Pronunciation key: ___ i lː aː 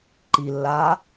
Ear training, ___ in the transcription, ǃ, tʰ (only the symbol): ǃ